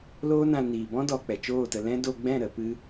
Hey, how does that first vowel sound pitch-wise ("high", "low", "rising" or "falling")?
high